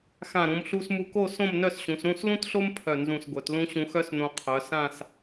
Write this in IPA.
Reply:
x ã˧˩ ɾ ũ˩˧ m ɬ u˧ s m u˧ k o˥˧ s õ˥˧ m n œ˥˧ s ɕ ũ˩˧ s ɾ ũ˥˧ s l ũ˥ t ɬ o˥ m pʰ œ˧˩ n z ũ˧˩ s ɡʷ œ˩˧ t l ũ˥ ɕ ũ˧ x œ˥ s n õ˧ qʰ œ˩˧ s ã˥˧ s

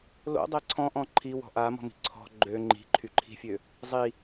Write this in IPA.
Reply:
l o̰ dˤ ɛ ǀʰ ɔ̃ ʔ ɔ̃ ǃʰ i w ɔ̤ ʔ a m ɔ̤ m i̤ ǀʰ ɔ̤ ɡ͡ǃ ø ŋ͡ǃ i̤ ǃʰ y ǃʰ i̤ fʲ ø | zˤ i

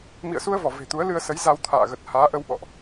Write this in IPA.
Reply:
m ḭ˧˨ ə̯ s u˧ ə̯ v ɔ˧˩ v e̤˨˩ t̪ u˨˦ ə̯ l ɨ˧ ə̯ s ə˨˦ j z a˧ w t̪ʰ a̰ː˧˨ ɣ ə˨˩ t̚ h aː˨˦ ʔ ə˧ w ɓ ɔ̰˧˨ ʔ

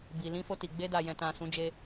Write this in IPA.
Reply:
b i˨ l ĩ˧ f o˧ t i˨ ɡ͡b e˧ d a˨ j ɛ̃˨ t ã˨ s ũ˨˦ d͡ʒ e˧

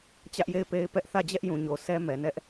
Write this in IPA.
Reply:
t͡ɕ ä˦ ʔ j e˦˨ ɪ̯ p e˦ ɪ̯ p ɛ˦ ʔ θ ä˦˨ d͡ʑ ɛ˦ ʔ j ũ˨ ɲ o˨ s ɛ˦ m ɛ˨ n ɛ˦ ʔ

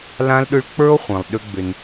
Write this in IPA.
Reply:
l ã˦ l ɗ ʏ˦ ɭ k͡p ə˞˦ o̯ χʷ ĩ˨ lˠ ɗ ʏ˦ ɡ͡b ʏ˧ n

